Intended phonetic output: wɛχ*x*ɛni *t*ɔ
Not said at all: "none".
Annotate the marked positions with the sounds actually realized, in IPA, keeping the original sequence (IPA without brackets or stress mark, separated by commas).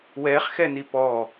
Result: x, p